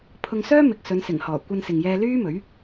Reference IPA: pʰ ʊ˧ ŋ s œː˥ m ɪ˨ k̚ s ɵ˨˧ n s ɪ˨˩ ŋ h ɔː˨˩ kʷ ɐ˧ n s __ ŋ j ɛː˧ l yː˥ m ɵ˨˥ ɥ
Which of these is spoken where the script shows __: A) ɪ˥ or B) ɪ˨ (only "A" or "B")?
B